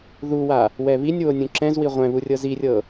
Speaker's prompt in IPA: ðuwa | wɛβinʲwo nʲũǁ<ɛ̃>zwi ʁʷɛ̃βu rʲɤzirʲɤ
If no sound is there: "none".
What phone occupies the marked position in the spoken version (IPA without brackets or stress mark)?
ɛ̃